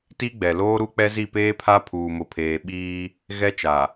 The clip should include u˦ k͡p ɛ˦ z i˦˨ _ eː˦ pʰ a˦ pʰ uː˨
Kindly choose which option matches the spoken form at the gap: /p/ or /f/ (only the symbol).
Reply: p